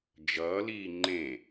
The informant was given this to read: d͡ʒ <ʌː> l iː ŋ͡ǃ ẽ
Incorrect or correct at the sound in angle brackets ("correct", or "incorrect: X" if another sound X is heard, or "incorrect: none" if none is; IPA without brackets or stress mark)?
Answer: correct